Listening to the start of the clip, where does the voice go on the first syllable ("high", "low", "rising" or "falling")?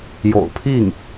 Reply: low